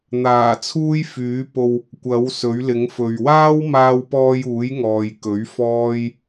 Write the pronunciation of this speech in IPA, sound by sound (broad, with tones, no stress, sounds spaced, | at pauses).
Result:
n̪ aː˨˩ t͡sʰ uː˥ j f yː˨˥ p o˧ w | kʷ ɐ˨˥ w s ɵ˨˥ ɥ l ɪ˨˥ ŋ f ɵ˨ ɥ w aː˥ w m aː˧ w p ɔː˧ j uː˨˥ j ŋ ɔː˨ j k ɵ˨˥ ɥ f ɔː˥ j